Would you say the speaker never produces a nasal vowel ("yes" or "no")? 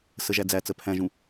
no